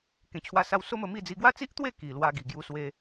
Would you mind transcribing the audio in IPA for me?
kẽ˨˩t͡ɕʰwa˧sa˧w so˦mə˧mi˥˧d͡zi˧ ɡwa˦t͡si˦ʔt̪we˥˧ ki˨˩lwa˧ ɡi˨˩ɡju˧swe˧

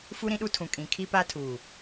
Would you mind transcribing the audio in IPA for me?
fu˦ ɾĩ˦ɗu˦tʰũ˨ kʼĩ˨kʰi˦pa˦tʰuː˨

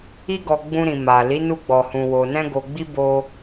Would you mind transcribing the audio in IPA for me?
i˦ɡɔ˧ɡ͡bũ˧ɾĩ˨ ma˨ li˨˦nu˧ɡ͡bɔ˨hũ˨ wo˨ nɛ̃˧ɡo˨ɡ͡bi˧ bo˧

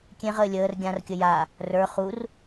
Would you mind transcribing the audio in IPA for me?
kʲẽʁəː lʲəːr ɡʲãrkʲə ja | rə˞ χur

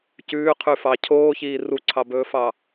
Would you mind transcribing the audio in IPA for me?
cʉːqʰʉfɑ cʰoːçiː ruǀʰɑbɵːfɑ

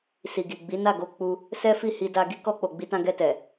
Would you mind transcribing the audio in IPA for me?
si˨ɡi˨ ɡ͡bi˨˦na˦˨ ɡo˧ k͡pu˦ | sɛ˦fi˦˨ hi˧da˧ ɡi˦kɔ˧k͡po˨ ɡ͡bi˧tã˧ ɡɛ˧tɛ˨

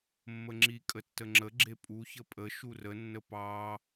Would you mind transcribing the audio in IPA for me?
mːəŋ͡ǁi kʼətːəŋ͡ǁə ɡ͡ǁepʼu çəpʼə ʃurə nːəpɑ

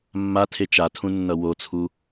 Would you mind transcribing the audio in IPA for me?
mːatʰe t͡ʃatʰũnːʌ wot͡sʰu

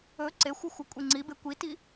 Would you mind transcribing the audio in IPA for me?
ɵ ǀexʷɯ xʷəkʷʼiŋ͡ǀibe kʷiti

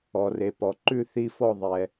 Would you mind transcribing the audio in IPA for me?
ɔ˨re˨pɔ˨ ǃʉ˥˨ θi˥˨fɔ˥˨ðˤɛ˨

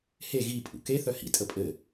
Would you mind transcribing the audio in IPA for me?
he ɣi pʼṵke θœhḭ tʼəpʼɘ

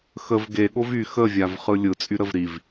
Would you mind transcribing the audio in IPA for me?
xəv ɡeɠov y xəvʲavχɯ lʲɯ t͡sʼyɾəvɾiv

